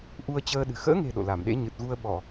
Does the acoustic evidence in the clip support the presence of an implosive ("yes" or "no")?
yes